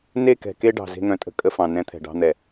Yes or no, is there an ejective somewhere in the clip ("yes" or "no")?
yes